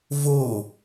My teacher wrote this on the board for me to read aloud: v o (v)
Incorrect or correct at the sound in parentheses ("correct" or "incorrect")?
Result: incorrect